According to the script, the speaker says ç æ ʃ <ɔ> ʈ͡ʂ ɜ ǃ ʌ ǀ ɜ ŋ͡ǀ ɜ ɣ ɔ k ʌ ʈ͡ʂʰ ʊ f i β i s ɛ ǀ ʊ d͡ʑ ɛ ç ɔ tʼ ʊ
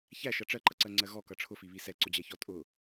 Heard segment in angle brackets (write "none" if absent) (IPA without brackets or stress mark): ʌ